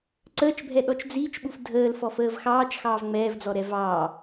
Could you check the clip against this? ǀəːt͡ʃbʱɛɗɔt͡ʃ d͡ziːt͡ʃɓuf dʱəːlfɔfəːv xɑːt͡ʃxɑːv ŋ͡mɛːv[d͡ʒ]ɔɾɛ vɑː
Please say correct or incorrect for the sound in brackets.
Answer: incorrect